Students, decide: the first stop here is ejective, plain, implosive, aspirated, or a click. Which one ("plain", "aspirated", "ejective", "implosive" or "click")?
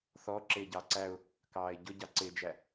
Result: click